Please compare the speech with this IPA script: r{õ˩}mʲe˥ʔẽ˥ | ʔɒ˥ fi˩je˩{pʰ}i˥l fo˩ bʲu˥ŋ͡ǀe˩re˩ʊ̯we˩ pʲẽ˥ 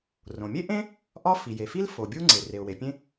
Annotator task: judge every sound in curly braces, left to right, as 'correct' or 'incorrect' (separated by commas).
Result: correct, incorrect